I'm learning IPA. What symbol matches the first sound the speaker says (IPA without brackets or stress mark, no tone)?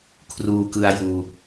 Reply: kʰ